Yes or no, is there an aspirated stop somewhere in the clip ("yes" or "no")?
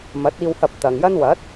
no